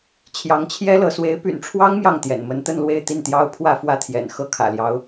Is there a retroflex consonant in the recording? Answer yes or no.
yes